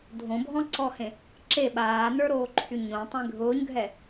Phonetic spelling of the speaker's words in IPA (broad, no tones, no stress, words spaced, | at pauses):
dʱõbʱɔ̃ǀɔhẽ | ǁe ɓaːnə˞ɾoːǃʰy ɲõtˤẽ ɡʱʊːɲɡʱɛ